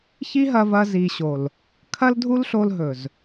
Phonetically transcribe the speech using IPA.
çi˦ɦɐ˧vɐ˧ zi˨ɕo˨l | kʰɐ˦ldʱu˦lɬo˧l ɦɵ˨z

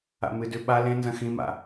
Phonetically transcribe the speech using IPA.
a̰mɨdʉ ɓa lẽnzɐ̃ xĩma̰

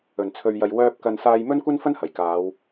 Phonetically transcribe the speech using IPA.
ɵ˨˩nt͡sʰɵ˨ɥjɐ˨j wœː˧p̚ kɐ˧n saː˧jmɵ˥nkʷɐ˥nfɐ˥n hɐ˨˩jkaː˨˧w

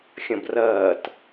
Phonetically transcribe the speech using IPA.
xʲɐ̃brɐːt

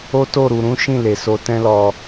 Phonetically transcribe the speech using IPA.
o˦to˦˨ ɾu˨ɾũ˨˦ʃĩ˦˨ le˨ so˧tɛ̃˦lɔ˧

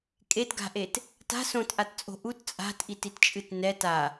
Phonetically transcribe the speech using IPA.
kʼetɡa̤ʔet | ta̤ sõtʔatt͡sʼo̤ ʔut t͡sʼa̤tʔititt͡ʃʼɨt nɛt a

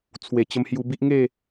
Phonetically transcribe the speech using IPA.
t͡sʰwe˨˩t͡ɕə˧mhju˧bi˦ʔ ŋe˥˧

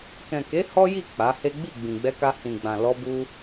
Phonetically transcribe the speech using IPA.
kɛ̃˨ke˨˦ hɔ˦ji˦˨ k͡pa˨˦he˦ ɡ͡bi˦˨ ɡ͡bĩ˨ɡ͡bɛ˧ka˧ hĩ˨ɡ͡bã˨ lɔ˧bu˧

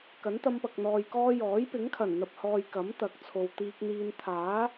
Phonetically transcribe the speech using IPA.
kɐ˨˥nt̪ɐ˧mpɐ˨k̚ n̪ɔː˨jkɔː˧jɔː˨˥j pɪ˨˥ŋkʰɐ˨˩nn̪ɐ˨p̚hɔː˨j kɐ˨˥mt̪ɐ˨˥k̚ t͡sʰo˨wt̪iː˧k̚n̪iː˧n t̪ʰaː˨˥

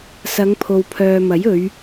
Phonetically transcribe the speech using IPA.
sɐ˨˧ŋ pʰo˨wpʰœː˨mɐ˨˥jɵ˨˧ɥ

